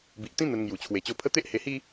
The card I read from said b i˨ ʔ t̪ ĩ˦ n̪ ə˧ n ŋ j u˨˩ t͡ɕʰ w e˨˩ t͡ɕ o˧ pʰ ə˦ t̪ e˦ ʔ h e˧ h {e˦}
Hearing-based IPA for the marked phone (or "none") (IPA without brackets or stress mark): i˦